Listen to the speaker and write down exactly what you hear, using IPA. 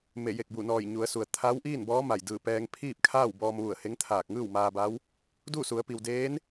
m e˧˩ j e˧˩ k̚ b u˧˩ n ɔː˧˩ j ɲ u˩˧ ə̯ s u˩ ə̯ t̪ʰ a˧˥ w ʔ iː˥˨ n b ɔː˧˥ m a˧˩ j d ɯː˧˩ p ɛː˧ ŋ pʰ iː˥˨ p̚ kʰ aː˥˨ w b ɔː˧ m ʋ u˧˩ ə̯ h e˧˥ ŋ t̪ʰ aː˧˩ k̚ ŋ ɯː˥˨ w m aː˧ b a˧˥ w | d uː˥˨ s u˩˧ ə̯ p i˩ w d eː˧˥ n

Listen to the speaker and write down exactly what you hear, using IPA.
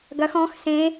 ɡ ɐ x ɔ̃ x s ẽ

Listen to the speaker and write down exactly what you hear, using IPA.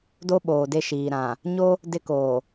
d o˦ ɓ oː˨ d e˦˨ ʃ iː˨ ɾ ã˨ | ɲ o˦ | d ɪ˦ k oː˨

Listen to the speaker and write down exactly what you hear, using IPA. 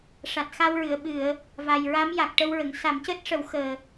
ʂ a˨˩ t̚ x a˧ w ɹ ɨ˨˩˨ ə̯ ɓ ɨ˨˩˨ ə̯ | v a˨˩ j ɹ a˧˥ m j a˨˩ k̚ ʈ ə˧ w ɹ ə˨˩˨ ŋ s a˨˩˦ m c əː˦˥ t̚ ʂ ə˨˩˦ w x əː˨˩

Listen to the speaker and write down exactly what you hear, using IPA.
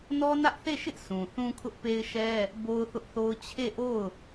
n ɔ˦ n ä˦ ʔ θ e˦˨ ʃ ɪ˦ ʔ s ũ˨ θ ũ˦ kʰ ʊ˦ ʔ p e˦ ɪ̯ ʃ ɛ˦ | b o˦ ʊ̯ θ ʊ˦ ʔ θ o˦ ʊ̯ t͡ɕʰ e˦˨ ʔ o˦˨ ʊ̯

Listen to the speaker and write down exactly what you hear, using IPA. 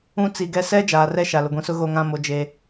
ũ˦ t͡s i˨ ɡ ɛ˦ s ɛ˦ d͡ʒ aː˨ r ɛ˦ ʃ a˨ l ʊ˨ ɡʷ ĩ˨ s ʊ˦ ɣ o˦˨ ŋ ã˦˨ m o˨ d͡ʒ e˨

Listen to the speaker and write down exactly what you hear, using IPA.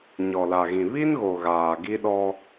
ɲ ɔ˨ l a˨ ɣ ĩ˨ β i˦ n ɣ o˨ ɣ aː˨ ɡ i˦ ɗ ɔ˦

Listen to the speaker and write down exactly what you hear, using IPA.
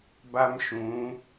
b a˦ m ʃ ũ˨˦

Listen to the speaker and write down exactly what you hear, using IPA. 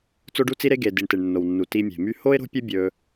t͡s o˧ ɖ u˧ t͡s i˧ ɾ e˧ ɡ e˨ d i˨ ɳ t e˨ ɳ nː o˨ w nː u˨ t i˧ mʲ e̤˨ m y˦ h o˦ ɪ̯ ɾ o̤˦ pʲ ɵ˦ bʲ ɵ˧

